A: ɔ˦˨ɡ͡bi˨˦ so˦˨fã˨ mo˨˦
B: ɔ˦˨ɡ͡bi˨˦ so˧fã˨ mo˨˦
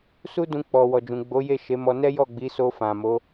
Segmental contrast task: B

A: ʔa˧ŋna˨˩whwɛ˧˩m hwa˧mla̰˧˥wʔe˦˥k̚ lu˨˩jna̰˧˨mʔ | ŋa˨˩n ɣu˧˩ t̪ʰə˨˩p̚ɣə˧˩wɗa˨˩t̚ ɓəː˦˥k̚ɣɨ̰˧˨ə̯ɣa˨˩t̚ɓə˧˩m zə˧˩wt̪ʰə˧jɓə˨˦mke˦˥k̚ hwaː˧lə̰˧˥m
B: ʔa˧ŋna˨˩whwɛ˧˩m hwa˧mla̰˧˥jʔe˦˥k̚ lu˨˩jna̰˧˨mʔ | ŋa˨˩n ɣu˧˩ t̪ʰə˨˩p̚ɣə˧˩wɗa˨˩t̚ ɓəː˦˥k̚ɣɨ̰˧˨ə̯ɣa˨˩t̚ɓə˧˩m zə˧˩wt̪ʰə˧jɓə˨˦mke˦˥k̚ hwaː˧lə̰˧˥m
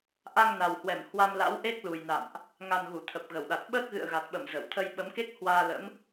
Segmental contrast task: A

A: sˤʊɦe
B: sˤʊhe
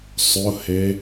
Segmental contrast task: B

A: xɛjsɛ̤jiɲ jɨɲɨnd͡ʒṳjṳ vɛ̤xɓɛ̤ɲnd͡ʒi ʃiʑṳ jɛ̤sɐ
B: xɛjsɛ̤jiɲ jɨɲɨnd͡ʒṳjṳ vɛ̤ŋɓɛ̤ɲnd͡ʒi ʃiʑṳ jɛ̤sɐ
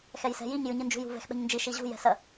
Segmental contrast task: A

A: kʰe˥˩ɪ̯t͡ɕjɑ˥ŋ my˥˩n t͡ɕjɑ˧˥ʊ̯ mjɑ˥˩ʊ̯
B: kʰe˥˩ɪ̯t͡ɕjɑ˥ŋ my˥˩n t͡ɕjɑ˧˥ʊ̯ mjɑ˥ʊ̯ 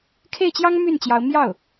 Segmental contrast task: A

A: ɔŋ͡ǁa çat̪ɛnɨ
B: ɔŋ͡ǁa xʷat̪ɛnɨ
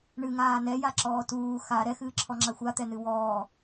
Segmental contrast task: B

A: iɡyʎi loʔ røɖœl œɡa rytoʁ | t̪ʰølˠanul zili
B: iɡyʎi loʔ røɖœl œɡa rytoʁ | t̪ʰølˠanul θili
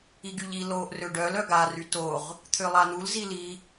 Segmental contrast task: A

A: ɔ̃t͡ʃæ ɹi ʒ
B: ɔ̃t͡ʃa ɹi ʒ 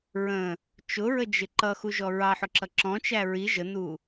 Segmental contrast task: A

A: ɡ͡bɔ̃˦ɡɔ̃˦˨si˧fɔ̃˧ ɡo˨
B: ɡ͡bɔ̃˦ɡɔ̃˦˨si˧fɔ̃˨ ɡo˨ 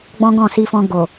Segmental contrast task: A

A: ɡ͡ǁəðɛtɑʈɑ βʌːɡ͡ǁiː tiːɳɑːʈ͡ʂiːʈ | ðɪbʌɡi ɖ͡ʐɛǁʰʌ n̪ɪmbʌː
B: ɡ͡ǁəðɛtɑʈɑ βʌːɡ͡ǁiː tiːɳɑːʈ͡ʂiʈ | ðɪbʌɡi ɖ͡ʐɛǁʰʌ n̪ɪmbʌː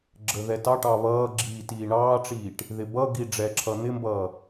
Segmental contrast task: A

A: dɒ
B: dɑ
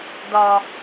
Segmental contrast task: A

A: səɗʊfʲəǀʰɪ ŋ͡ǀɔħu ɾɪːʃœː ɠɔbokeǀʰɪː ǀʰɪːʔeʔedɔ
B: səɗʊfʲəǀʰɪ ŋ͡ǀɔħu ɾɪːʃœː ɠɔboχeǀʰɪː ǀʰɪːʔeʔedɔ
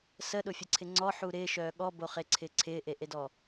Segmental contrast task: B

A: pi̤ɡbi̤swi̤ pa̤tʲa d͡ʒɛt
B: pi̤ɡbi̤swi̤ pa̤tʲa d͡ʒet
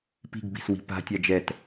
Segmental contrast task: A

